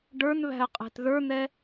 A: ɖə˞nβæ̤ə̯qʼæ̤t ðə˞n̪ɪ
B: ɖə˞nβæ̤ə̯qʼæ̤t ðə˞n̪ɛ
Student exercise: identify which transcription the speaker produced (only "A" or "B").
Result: B